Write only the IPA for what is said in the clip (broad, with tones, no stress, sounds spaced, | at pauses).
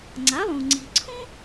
ŋ͡ǀ a˩˥ lˠ ũ˩ ŋ͡ǀ i̤˩ ǀʰ ũ˥